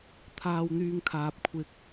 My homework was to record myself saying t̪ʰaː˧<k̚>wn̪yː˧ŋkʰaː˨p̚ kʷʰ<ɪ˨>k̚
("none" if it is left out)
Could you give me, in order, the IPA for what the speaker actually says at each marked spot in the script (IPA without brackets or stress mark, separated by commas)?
none, ɪ˨